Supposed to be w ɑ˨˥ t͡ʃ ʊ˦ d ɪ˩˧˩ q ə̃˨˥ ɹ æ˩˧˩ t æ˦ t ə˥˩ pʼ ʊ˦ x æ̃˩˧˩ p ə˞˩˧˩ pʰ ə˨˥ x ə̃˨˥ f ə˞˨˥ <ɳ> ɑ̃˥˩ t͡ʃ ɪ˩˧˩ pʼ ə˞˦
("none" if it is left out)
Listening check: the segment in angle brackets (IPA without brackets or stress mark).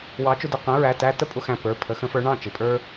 ɳ